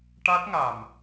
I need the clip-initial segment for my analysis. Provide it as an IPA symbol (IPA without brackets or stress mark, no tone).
ʈ